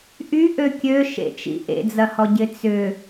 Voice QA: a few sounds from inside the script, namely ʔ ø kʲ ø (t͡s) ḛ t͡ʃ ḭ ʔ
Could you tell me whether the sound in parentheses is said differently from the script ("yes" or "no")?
yes